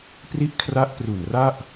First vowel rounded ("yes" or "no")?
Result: no